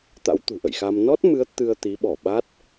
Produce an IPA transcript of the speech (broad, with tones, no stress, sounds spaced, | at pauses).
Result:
t̪ a̰˧˥ w t̪ ṳ˨˩ ʔ ə̰˧˨ j x a˧ m n ɔ˦˥ t̚ m ɨ˨˦ ə̯ t̪ ɨ˧ ə̯ t̪ i˨˦ ɓ ɔ˧˩ ɓ a˦˥ t̚